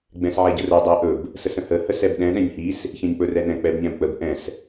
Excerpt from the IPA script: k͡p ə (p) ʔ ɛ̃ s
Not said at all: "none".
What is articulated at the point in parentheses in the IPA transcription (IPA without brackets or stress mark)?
b